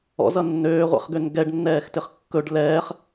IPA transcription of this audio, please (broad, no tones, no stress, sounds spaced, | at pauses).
ɔ̰ z ʌ nː øː ʁʷ ɛ̰ χ ɡ ø n ɡ ɛ ɖ nː ɛː x t ɪ χ kː ɵ ɖ l ɛː χ